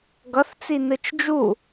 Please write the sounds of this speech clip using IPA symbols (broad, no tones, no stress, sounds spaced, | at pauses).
ɡ ʌ θ t͡s i n ɯ t͡ʃ d͡ʒ u